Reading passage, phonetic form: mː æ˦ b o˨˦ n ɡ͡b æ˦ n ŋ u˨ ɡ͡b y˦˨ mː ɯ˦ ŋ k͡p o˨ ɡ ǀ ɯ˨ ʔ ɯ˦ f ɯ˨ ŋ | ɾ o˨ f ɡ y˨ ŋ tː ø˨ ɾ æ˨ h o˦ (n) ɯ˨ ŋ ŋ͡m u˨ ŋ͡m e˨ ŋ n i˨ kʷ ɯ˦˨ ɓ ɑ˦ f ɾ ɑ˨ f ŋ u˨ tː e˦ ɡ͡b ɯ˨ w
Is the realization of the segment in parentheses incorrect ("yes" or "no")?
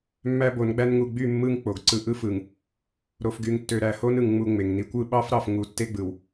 no